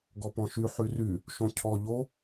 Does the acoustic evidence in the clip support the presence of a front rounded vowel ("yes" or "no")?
yes